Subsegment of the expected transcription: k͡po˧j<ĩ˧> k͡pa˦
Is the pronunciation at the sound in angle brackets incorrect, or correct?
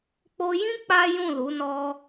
incorrect